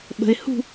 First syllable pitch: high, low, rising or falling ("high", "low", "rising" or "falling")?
low